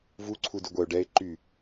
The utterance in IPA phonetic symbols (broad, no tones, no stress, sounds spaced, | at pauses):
v u ǀʰ u d y ɡʷ ɛ ʊ̯ ɖ ɛ ɪ̯ ǃ y